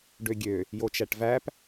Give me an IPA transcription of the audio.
ɖøɡʲø | jot͡ʃæʈvæp

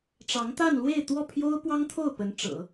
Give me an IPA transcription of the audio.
ʈ͡ʂɑ˧˥ŋt̪a˥˧nlwe˥˧ɪ̯ t̪wɔ˥˩pʰjo˥ʊ̯pwɑ˥ŋt̪ʰo˥˩ʊ̯ pə˧˥nʈ͡ʂɤ̰˨˩˦

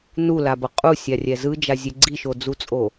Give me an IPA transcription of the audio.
nulabʌ qʼusʲarʲɛ zɯd͡ʒazʲe ɡ͡ǀiʃod͡zut͡sʼo

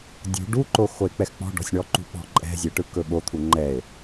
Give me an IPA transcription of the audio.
dʲṳ ɖuǃo xoe̯k͡pɛxk͡pɔ̤ɖɔ̤sʲ ɳɔǃṳɓɔ̤ ǃʼɛ̤zʲe ʈɯkɵɓot̪ʰu ŋ͡ǃɛe̯

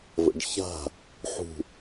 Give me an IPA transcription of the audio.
və̰ɖça̤ | ħṳ

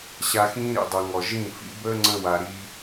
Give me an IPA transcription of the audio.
ɕa˧xĩː˦ ɾḭ˨dˤɘ˨ ŋɔ˨ʒĩ˦˨fḭ˦ bəː˦ŋ͡ǀə̃˧wa˨ ɾi˧

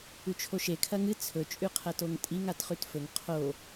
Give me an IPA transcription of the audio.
ʉt͡ʃʰoʃe kʰɐŋɨ t͡sʰɵ t͡ʃʼʉqʰɐtoŋtʼiŋ atχʉtfɵŋ qʰo

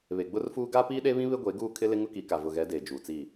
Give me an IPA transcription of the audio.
βe˨ɡ͡bʊ˦rfuː˦ ɡa˦piː˦ɗe˦βĩ˦ βɪ˦ɡʷe˨˦ɡuː˦˨kʰɪ˦ lɪ˦ŋʊ˦ki˨˦ka˨ vʊ˨ɣɛ˨˦deː˨ d͡ʒuː˨t͡si˦˨

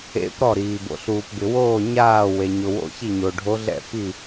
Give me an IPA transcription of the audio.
ḛ˧˥p ɾɔ˥˩ɾiː˩ bo̰˩ɬuː˩pbɪ˩woː˥˩ ɲaː˥˩ we˩ɲʊ˩wo̰˧˥ çi˥˩ɲo˩ɖʱo˧˥ɮɛ̰˥˩ pi˥˩

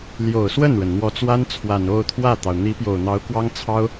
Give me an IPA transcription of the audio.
ljo˨˩ʊ̯swə˥˩nɻə˩n n̪wɔ˧˥t͡swa˥nt͡sʰwa˨˩n o˥˧ʊ̯t̪ʰwä˥˩t̪ɑ˩ʊ̯ n̪i˧˥pjo˨˩ʊ̯n̪ɑ˧˥ʊ̯ kwɑ˥ŋt͡sʰɑ˥ʊ̯

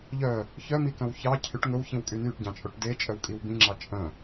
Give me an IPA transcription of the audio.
ʎœ | çœmikœ̃w çɑ cʰyʈ ŋɵwçĩwkʼy nyʈɟɑ̃t͡ʃʼoʈ det͡ʃʼœwkʼiw bĩŋ͡ǁɑ t͡ʃʼœ̃

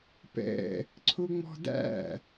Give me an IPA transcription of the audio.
pɛ̰ | ǀʰʊŋ͡mɔ̤dæ̰

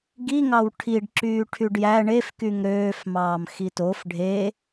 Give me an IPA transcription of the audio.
ɡiŋɑw ʈʰiɖ ǁyːʈʰyɖjæ ɳefkyŋ ɾøːfmɑːm xitof ɖʱe

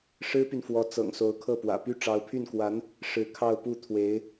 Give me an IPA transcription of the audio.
ʂɻ̩˥py˨nfwɔ˧˥ t͡sɤ̰˨˩ŋso˧˥ʊ̯kʰɤ˥˩pwä̰˨˩ py˥˩ ʈ͡ʂɑ˧˥ʊ̯pʰy˥˩nkwa˧˥n | ʂɻ̩˧˥ kʰɑ˥˧ʊ̯pu˥˩ t̪ʰwe˧˥ɪ̯

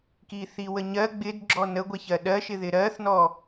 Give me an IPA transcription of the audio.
kiθiwəɲɜ ɡ͡bɪd ɡ͡ǁɔnəɡʷɛ çɜɗɜʃɪ ðɪɾɜθnɔ

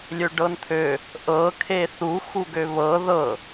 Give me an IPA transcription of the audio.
lʲøɖɤnt̪ʰø | ʔɤ kʰeθu xuɡøβɤ ðɤ

